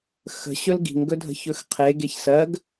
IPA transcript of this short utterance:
xə̤ɕɵl ɡi̤ŋɡɵdʱə̤çɵx qʰeɡeç sɜɡ

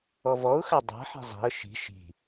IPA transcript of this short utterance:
ɔvɔʊ̯xa dˤa̤ħi̤ zˤi̤ə̯ ʃi̤ ʃi̤

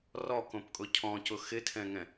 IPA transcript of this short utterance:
rɔkõpkʼʊ cʰɔ̃cʊ xɪtʰɛ̃ŋɛ̃

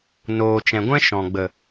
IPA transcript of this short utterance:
noː˨t͡ʃɛ̃˨ɡʷɛ̃˦ ʃɔ̃˨ ɡ͡bə˨

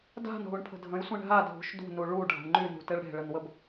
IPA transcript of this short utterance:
da̤n ɦuɳpʰə̤dʱə̃jsʷẽɳ ɦadʱṳʃ dṳ nuɭu ɖʱa̤ɳŋ͡ǃynṳ teɭɽe̤ɭənwəb

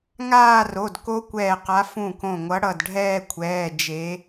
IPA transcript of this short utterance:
ŋaː˥˧ro˩˧˩d ko˦˥kʷɛː˧˩qa˨˦ fũ˧˩kõ˧˩ŋʷʌ˨˦ ɽʌ˧˩dɖʱɛː˥˧kʷʰɛː˩˧˩ d͡ʒe˨˦

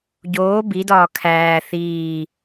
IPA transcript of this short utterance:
ɟoː bidɒː kʰæː θiː

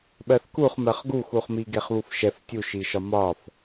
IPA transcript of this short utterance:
ɓɜθkuχmɜχ ɡuxuχmi ɡeχβufʃɛf tʲuʃiʃɒ mɒf

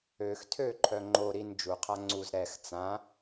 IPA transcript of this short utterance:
øx tʰø ǃʰœŋ͡ǃo ɾin d͡ʒu qʰaŋ͡ǀuz ɾɛx t͡sã

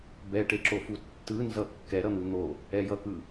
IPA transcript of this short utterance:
bɛʈe ǁofutːɯnzʌ kːɛ ɾʌn̪ɯn̪o | ɛjʌkɯ

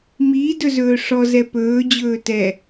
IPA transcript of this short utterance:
mi dɵzɵːʂɔzɛ pɵːd͡ʑɵː tɛ

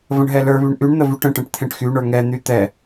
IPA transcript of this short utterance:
və̃ɳɦɛlə˞βyɳ ʔyɳ n̪əvyʈə̃ʈɛ̃ʈ t̪ʰẽʈxyɳə˞ ŋɛn̪y t̪ɛ

